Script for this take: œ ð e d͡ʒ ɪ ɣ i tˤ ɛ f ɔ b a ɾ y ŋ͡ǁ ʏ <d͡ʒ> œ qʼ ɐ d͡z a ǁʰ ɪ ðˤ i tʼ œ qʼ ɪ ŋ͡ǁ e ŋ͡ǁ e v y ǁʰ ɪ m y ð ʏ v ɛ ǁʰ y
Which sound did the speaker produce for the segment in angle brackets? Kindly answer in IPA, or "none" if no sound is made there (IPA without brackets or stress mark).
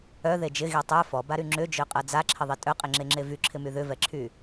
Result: d͡ʒ